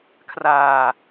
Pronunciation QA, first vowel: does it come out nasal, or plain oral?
oral